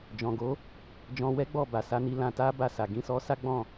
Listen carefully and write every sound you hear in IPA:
d͡ʒ ɔ̃˨ ɡ o˨˦ | d͡ʒ ɔ̃˧ w ɛ˦ ɡ͡b ɔ˦˨ b a˨ s a˧ n i˧ l ã˧ t a˦ b a˦˨ s a˨ ɡ ĩ˧ s ɔ˦ s a˦ ɡ͡b ɔ̃˦˨

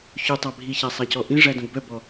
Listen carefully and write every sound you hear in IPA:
ç ʉ tˤ æ bʱ i ç æ sˤ æ c ɔ ʔ ĩ ʐ æ d õ ɡ b œ b ɔ

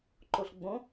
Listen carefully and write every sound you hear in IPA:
ǃ o ɬ ɡ͡b õ

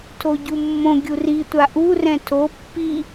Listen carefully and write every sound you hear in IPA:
tʰ o ɟ u mː õ ɡʲ u r i tʷ a ʔ u r ɛ̃ tʰ o pː i

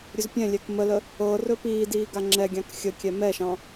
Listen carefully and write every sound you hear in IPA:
ɾʲ ɵ z pʲ ɛ̃ lʲ ɛ k m ə l ə | ɤ r ɵ p iː d iː ɡ a ŋ͡ǁ ɛ ɡʲ ɑ̃ k xʲ ə kʲ ɛ m ɛ ʃ ɑ̃

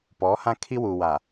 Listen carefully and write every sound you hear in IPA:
p ɔ˨˦ h ã˦ kʰ i˦ w u˨ w a˨

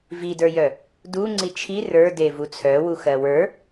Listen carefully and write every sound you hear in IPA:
v i d ə˞ j œ | d u ŋ͡ǀ i t͡ʃʰ i r ə˞ d e v u t͡sʰ œ w u x ɜ w ə˞

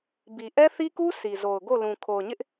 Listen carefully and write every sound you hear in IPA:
b i˨ ʔ ɛ˦ θ i˦ k u˦ sʰ i˨ z o˨ ʊ̯ ɡ o˦˨ l ũ˨ kʰ o˨ ʊ̯ ɲ ɪ˦ ʔ

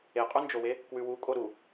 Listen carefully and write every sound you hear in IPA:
e qʼ u n d͡ʒ o w e | k w ʉ w u kʼ o ɾ u

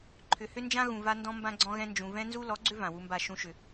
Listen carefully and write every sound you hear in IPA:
ǃʰ ʏ˨ h ʏ˦ n d͡ʒ ã˦ ɣ ũ˨ v a˦ n d ɔ̃˦ m b ã˦ ɡ͡ǀ ɔ̃˦ ɣ ɛ̃˦ n d͡ʒ ũ˨ v ɛ̃˦ n z u˦ l ɔ˨˦ ɡ͡ǀ ʏ˦ v ã˨ w u˦ m b a˦˨ ʃ ũ˦ ʃ ʏ˨

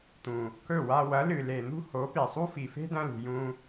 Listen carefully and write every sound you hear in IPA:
t̪ ũ˨ | k ɵ˦˨ w a˧ w ɐ˨˦ l ɨ˨ l e˨ n̪ ṳ˦ h o˨˦ p i˨ sˤ u˦ f i˨ f e̤˦ d ɐ̃˧ l ṳ˨ j ũ˧

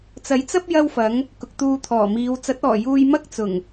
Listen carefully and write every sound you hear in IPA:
t͡s ɐ˨˥ j t͡s ɐ˥ p̚ j ɐ˥ w f ɐ˨˥ ŋ | k ʊ˨ k̚ t̪ uː˧ t̪ʰ ɔː˨˩ m iː˨˧ w t͡s ɐ˨˥ t̚ ɔː˨˩ j uː˧ j m ɐ˥ k̚ t͡s ʊ˨˩ ŋ

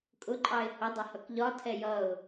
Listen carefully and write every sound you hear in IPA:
kʼ ʊ ǃʼ ɑ ɪ̯ h ʊ dˤ ʌ h ʌ k ʎ ɒ tʰ ɛ j ʌ ʊ̯

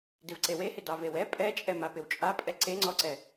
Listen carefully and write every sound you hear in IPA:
d ɪ v ǀ e w e h ɪ d ɑ v e w ɛ pʼ ɛ t͡ʃʼ ɛ m a p ɪ w t͡ʃʼ a pʼ ɛ ǀ e ŋ͡ǀ ɔ ǀ ɛ

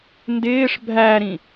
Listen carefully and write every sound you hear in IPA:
n d ɪː ʂ bʱ æ ɾ ĩ

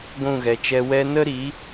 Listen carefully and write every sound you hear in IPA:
ɡʷ ũ˦˨ ɣ ɛ˨ t͡ʃ ɛ˧ w ɛ˧ n ə˦ ɾ i˨˦

